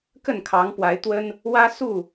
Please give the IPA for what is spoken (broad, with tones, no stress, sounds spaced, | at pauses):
k ə˥˨ n kʰ ɑ˨˦ ŋ p w a˨˦ ɪ̯ t̪ w ə˦ n | w ä˦ s u˥˨